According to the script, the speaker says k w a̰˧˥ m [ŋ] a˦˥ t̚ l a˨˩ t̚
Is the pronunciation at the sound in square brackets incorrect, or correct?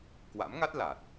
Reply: correct